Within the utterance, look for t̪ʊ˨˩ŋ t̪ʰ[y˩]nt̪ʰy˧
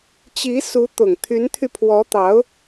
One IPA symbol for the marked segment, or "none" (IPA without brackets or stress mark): y˧˥